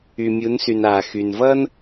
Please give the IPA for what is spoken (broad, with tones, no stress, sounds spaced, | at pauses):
y˩ mʲ u˩˧ n s y˩ n aː˩ x y˩ n v ʌː˥ n